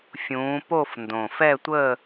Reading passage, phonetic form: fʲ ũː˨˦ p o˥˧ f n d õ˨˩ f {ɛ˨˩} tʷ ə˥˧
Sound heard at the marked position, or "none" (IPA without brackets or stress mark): ɛ˥˧